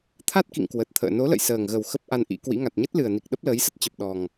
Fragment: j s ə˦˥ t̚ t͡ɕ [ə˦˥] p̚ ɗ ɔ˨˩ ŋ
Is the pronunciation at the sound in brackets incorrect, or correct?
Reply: incorrect